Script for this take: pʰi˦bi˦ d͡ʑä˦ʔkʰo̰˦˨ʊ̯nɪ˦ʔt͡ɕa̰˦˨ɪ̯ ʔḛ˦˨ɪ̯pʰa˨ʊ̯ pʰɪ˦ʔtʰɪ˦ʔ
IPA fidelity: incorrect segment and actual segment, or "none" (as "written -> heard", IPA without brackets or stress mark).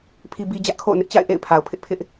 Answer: tʰ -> pʰ